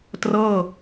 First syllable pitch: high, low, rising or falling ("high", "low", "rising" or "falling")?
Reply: falling